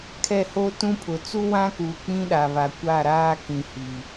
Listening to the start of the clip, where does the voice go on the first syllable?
falling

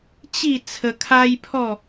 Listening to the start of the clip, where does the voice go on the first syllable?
falling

